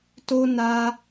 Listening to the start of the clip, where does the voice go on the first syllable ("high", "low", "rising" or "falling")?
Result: high